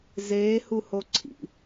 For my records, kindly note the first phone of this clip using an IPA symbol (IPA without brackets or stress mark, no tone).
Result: z